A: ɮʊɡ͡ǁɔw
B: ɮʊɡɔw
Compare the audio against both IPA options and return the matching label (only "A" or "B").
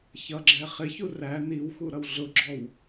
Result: A